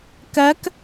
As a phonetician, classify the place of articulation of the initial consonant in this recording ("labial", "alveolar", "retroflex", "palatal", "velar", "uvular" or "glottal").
velar